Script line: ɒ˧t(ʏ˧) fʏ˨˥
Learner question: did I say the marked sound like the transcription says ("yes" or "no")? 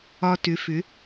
no